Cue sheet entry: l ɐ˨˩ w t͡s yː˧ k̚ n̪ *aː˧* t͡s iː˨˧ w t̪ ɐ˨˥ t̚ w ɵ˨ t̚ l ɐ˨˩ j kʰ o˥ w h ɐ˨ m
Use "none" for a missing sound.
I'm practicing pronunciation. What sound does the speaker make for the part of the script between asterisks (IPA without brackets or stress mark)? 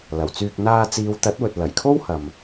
aː˧